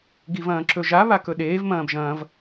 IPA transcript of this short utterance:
ɡ i v ɐ̃ː ǁ ɵ ʒ a β a k ɵ ɗ eː v m ɐ̃ː b ʒ ɐ̃ː v

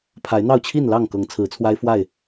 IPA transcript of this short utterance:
pʰ a˨˦ ɪ̯ n̪ ɑ˥˨ ʊ̯ t͡ɕʰ i˥˨ n l ɑ˥˨ ŋ k ɤ˨˦ ŋ t͡sʰ ɹ̩˨˦ t͡sʰ w a˦ ɪ̯ f w a˥˨ ɪ̯

